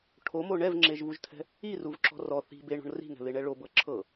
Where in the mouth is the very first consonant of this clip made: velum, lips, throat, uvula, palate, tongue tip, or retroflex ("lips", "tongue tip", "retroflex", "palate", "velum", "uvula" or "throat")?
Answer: retroflex